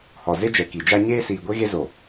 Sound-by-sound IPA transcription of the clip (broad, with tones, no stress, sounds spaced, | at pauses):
h ɔ˨ z e˦ d͡ʒ ɛ˨ k i˨ d͡ʒ a˦ ɲ eː˦ s iː˨ ɡʷ e˦ ɣ e˦ z o˨